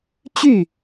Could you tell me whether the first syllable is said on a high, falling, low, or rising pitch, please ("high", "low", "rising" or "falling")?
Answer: falling